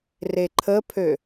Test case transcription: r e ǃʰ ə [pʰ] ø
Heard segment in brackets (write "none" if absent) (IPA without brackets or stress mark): pʰ